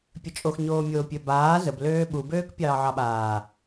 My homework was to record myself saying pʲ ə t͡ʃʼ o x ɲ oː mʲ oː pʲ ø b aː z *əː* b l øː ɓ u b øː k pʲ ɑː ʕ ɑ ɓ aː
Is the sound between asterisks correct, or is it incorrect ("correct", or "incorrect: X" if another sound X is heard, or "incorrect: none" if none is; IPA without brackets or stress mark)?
incorrect: ə